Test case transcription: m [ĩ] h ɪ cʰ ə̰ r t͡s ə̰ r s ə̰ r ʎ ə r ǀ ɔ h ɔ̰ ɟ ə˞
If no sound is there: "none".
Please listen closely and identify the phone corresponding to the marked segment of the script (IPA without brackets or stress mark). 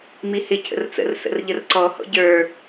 i